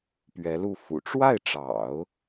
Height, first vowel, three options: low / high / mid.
mid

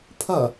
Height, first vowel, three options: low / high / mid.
low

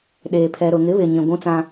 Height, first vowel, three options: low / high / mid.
mid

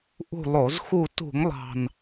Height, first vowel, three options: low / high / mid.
high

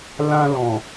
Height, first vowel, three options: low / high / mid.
low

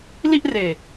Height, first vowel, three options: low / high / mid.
high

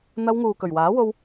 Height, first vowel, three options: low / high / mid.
low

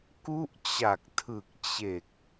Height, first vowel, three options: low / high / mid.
high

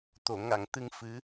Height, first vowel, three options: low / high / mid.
mid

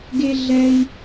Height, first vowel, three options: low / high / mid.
mid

